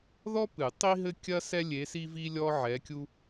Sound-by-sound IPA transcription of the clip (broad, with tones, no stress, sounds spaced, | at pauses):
ð ɔ˥ p ɨ˨˩˦ tˤ i˥ ɦ ɘ˥ kʲ ɐ˥ s ɛ˥ lʲ e˧˥ s i˥ v i˥ lʲ ɔ˥ ʕ ɛ˧˥ kʲ u˥